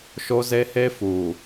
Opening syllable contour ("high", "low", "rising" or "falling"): high